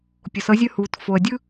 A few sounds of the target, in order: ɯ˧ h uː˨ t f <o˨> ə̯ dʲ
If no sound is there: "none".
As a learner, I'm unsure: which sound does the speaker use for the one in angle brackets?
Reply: o˨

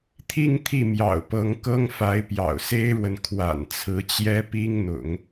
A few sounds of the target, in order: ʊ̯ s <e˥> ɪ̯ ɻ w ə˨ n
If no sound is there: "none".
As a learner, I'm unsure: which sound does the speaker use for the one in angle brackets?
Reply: e˥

